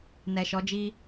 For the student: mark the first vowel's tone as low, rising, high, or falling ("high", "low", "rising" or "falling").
low